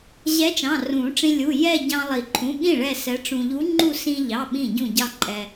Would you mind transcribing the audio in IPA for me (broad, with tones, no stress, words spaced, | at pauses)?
ʑɛ˧˥t͡ʃɑ̃˩˧˩ rũ˨˩˦ʈ͡ʂĩ˧ lʲu˩˧˩jɛ˥˧ ɟɑ̃˧lˠi˨˩˦ǃʰũ˩˧˩ɠĩ˥˩ ɭɛ˥˧sɛ˧˥ʈ͡ʂũ˧ ʎu˧˥ŋ͡ǃu˥˧ sĩ˧ʎɑ˩˧˩ ɓĩ˥˩ɟũ˥˩ɟɑ˥˧ǃʼɛ˧